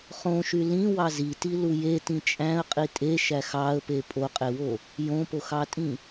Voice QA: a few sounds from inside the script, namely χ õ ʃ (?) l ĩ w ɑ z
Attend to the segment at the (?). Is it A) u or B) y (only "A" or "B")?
B